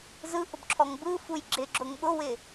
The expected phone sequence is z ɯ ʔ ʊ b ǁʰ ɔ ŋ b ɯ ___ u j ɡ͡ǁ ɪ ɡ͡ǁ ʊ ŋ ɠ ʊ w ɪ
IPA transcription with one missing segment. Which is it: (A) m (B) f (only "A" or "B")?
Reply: B